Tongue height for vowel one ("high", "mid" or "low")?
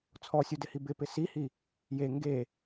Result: mid